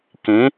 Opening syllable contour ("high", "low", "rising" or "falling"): rising